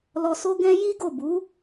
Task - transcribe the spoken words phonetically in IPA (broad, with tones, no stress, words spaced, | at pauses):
lɔ˧so˦ ɡɛ̃˦ ji˦ɡo˦˨ bu˨˦